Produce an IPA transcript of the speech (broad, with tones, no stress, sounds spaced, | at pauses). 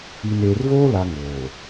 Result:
i˨ n eː˨ r v oː˦ l a˨ ŋ oː˨